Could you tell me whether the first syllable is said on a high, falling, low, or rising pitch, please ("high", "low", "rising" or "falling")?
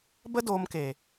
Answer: high